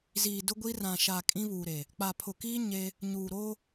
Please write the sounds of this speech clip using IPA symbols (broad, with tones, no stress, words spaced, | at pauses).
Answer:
ziː˨dʊ˦ɡʷi˦ rã˨ʃa˨ kʼĩ˦βuː˨ɾe˨ | k͡pa˨pʰʊ˨kiː˦ ɲe˦ | ɲuː˨ɾoː˦